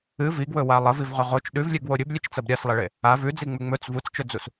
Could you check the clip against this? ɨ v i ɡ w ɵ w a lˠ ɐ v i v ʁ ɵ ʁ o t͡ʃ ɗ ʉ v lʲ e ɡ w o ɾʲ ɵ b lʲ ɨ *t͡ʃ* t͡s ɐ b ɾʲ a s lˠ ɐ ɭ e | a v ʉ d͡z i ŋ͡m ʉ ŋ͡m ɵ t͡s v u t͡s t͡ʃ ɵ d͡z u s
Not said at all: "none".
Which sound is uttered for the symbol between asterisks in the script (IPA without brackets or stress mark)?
t͡ʃ